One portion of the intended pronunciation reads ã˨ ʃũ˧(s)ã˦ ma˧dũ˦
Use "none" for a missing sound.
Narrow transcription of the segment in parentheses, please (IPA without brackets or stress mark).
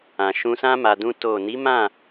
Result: s